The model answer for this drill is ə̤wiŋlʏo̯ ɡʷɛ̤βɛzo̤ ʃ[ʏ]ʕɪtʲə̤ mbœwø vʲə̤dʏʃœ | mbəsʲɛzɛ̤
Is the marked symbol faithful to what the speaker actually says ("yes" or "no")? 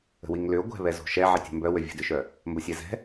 no